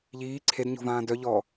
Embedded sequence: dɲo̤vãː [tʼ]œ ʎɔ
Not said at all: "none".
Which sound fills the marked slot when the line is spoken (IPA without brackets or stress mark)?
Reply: d